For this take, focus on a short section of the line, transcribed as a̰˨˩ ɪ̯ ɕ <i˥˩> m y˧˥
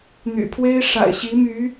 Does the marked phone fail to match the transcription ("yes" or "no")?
yes